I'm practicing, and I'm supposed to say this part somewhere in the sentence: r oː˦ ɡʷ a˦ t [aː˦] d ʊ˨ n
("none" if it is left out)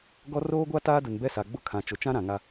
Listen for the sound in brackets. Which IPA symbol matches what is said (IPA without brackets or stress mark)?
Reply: aː˦